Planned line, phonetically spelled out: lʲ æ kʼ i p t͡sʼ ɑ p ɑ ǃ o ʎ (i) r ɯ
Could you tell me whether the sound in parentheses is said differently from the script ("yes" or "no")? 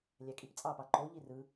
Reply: no